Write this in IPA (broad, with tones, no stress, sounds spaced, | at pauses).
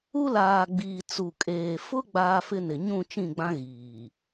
u˦ l aː˨ ɡ͡b iː˨ t͡s u˨ kʼ eː˨ f ʊ˦ ɡ͡b aː˦ f ɪ˦ n ɪ˨ ɲ ũ˦˨ t͡ʃ ĩ˦˨ ɡ͡b ã˦ ɣ iː˨